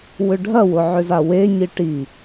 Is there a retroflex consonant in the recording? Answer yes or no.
yes